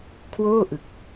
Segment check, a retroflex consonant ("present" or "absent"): absent